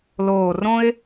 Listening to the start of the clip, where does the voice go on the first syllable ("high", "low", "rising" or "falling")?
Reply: low